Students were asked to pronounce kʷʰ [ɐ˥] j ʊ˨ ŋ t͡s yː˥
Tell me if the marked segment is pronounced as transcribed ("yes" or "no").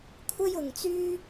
yes